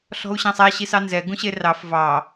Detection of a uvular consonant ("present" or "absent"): absent